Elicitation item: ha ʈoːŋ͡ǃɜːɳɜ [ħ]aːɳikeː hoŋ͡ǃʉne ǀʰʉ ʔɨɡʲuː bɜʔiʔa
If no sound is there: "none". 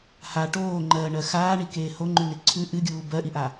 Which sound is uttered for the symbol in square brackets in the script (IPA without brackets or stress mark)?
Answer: x